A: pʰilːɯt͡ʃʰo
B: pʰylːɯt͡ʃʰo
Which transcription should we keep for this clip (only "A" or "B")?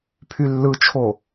B